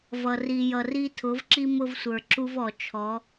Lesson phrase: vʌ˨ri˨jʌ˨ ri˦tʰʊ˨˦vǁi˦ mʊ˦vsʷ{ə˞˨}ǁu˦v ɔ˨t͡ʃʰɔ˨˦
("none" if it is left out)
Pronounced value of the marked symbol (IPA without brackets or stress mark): ə˞˨